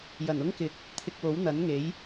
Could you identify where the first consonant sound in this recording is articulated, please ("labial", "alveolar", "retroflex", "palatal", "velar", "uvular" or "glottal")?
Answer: palatal